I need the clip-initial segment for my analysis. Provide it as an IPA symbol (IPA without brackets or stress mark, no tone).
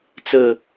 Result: t͡s